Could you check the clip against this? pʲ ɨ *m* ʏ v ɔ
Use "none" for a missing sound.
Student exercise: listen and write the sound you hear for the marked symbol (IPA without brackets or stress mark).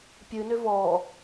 n